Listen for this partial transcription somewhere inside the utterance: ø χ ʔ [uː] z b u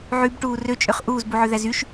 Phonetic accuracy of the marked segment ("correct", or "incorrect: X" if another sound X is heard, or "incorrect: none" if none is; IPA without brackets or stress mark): correct